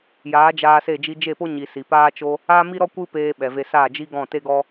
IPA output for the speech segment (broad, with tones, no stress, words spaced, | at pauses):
jaː˨˦d͡ʒaː˧se˦˨ d͡ʒi˧d͡ʒe˦˨po˦ɲi˨ si˨paː˦t͡ʃo˦ | aː˦mi˦ɾɔ˦ kʷɨ˦peː˧ ɓɛ˨ve˧saː˦˨ d͡ʒi˦ɡɔ̃˦˨te˦ɡɔ˦